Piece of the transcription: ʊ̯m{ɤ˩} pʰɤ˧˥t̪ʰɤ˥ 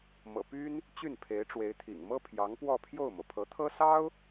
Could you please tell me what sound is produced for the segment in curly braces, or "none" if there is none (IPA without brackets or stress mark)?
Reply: ɤ˩